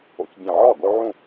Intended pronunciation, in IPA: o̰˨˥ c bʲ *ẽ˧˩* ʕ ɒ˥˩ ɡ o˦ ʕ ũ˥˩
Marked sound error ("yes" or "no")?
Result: no